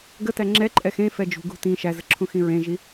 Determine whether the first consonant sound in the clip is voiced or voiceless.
voiced